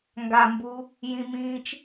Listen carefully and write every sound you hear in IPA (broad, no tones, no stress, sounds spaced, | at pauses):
ŋ ɡ a m b u | j ĩ m ĩː t͡ʃ